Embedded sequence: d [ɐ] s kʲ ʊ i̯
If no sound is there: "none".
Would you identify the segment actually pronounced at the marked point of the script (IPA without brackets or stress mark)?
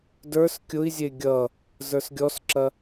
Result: ə˞